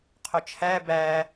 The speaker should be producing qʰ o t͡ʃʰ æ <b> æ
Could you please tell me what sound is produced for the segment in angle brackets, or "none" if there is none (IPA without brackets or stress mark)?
b